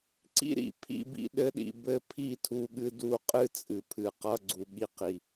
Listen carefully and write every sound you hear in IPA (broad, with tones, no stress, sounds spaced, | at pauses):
ǀ ḭ˦ ɾ ḭ˨ pʰ ḭ˧ b ḭ˧ ɗ ɘ˧ ɗ ḭ˨ b ɘ˧ pʰ i˦˨ tʰ u˧ ɠ ɨ˧ d u˧ qʼ ɨ˦ t͡sʼ ɨ˨ pʰ ɨ˨ q ʌ˧ ɡ͡ǀ u˨ ɠ i˧ q i˨